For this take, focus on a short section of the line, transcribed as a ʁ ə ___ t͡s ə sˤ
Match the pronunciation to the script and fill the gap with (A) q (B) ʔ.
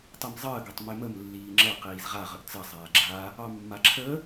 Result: B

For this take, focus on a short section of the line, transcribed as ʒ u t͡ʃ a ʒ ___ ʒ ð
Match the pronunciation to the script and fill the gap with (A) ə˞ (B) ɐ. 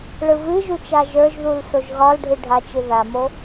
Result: A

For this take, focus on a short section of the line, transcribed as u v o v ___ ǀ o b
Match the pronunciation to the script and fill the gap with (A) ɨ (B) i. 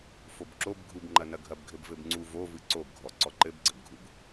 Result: A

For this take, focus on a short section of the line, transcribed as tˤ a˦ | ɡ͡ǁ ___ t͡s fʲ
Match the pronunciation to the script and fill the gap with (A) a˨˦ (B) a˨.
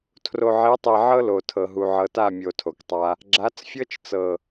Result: A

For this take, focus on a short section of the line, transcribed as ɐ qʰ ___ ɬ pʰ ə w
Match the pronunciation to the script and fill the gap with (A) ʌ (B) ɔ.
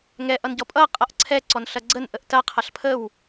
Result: A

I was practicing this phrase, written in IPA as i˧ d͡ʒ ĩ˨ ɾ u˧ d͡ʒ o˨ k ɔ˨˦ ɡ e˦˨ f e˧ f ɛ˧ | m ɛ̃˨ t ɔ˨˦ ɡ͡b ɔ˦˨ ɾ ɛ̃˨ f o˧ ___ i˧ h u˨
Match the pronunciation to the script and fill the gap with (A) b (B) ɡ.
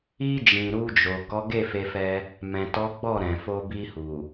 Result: A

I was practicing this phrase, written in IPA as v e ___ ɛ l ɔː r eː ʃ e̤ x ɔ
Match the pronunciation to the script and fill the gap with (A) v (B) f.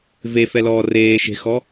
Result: B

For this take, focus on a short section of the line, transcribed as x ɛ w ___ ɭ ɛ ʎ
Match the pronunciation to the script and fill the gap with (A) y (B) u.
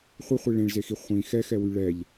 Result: A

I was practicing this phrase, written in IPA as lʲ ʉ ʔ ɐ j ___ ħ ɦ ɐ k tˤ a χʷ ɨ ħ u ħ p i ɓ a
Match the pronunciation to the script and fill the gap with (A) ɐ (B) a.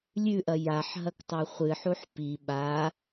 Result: B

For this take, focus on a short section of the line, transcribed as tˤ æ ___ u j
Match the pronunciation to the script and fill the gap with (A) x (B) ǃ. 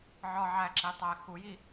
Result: A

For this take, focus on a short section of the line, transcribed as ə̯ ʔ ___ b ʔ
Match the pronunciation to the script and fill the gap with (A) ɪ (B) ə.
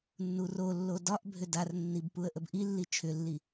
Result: B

